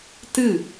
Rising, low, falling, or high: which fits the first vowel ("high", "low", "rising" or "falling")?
falling